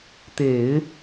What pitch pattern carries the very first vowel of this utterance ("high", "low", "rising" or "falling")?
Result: low